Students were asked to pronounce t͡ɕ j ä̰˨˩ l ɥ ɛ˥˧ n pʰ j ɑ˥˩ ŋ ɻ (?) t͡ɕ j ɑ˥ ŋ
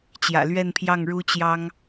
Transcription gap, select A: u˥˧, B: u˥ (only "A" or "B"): B